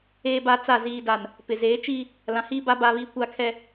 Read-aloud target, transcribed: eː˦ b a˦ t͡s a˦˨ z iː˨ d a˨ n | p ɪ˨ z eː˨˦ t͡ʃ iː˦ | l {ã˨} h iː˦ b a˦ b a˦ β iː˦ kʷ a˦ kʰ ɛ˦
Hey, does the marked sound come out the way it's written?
yes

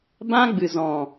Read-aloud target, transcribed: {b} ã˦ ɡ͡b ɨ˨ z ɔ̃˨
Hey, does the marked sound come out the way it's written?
yes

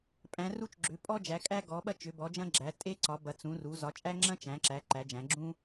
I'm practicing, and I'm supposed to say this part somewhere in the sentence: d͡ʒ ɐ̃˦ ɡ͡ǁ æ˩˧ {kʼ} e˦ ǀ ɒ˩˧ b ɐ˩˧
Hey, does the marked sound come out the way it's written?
no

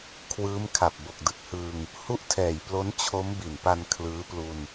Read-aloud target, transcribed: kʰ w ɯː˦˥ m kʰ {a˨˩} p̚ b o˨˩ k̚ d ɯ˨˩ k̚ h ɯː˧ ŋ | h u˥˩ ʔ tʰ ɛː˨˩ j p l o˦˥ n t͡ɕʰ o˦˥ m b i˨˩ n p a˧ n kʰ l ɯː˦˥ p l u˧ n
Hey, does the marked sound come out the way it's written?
yes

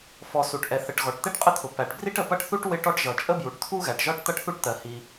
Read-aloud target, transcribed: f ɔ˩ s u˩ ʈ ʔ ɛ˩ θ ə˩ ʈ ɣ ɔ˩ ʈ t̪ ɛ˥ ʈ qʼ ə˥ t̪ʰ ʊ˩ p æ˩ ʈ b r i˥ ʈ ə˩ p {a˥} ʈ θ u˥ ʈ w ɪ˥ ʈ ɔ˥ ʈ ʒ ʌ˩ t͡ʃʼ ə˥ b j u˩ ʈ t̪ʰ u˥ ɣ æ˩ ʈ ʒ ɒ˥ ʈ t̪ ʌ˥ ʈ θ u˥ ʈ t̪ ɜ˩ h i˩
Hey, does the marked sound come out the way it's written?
no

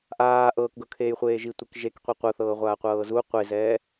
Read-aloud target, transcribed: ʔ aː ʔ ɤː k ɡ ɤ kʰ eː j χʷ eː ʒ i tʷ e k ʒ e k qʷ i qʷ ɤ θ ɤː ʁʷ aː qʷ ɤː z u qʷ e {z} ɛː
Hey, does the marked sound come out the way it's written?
yes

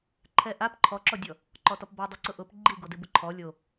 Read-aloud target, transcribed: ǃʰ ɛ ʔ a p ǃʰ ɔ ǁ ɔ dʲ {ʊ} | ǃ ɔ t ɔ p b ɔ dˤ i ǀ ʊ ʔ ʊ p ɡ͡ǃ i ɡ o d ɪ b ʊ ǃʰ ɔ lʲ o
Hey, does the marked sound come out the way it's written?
no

